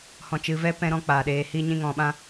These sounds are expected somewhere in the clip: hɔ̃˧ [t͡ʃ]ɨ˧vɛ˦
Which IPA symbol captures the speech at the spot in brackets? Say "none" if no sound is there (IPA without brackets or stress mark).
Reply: t͡ʃ